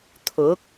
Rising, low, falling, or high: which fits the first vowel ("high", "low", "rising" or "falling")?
rising